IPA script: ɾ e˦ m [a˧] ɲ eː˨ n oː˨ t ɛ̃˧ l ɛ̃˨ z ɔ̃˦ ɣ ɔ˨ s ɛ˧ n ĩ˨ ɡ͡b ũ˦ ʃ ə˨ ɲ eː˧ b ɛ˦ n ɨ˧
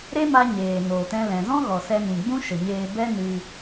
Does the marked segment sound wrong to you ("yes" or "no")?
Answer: no